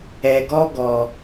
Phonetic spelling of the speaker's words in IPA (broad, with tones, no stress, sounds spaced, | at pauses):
ɛ˧ ɡ ɔ˦ ɡ ɔ˧